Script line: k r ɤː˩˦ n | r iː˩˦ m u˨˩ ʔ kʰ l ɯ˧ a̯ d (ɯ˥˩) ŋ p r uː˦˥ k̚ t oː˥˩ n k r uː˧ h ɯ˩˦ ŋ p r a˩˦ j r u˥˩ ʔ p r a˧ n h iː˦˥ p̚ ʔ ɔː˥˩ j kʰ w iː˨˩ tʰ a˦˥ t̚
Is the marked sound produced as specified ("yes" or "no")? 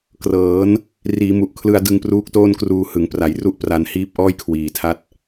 no